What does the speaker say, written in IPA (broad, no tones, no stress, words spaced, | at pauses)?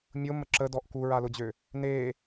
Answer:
mʲʊ məǁədɔʔ kuɹalʊd͡ʑø | ne